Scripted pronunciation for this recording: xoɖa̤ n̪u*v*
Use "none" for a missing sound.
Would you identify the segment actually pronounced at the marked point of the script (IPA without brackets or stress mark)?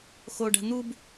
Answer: b